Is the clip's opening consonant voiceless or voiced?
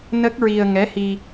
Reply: voiced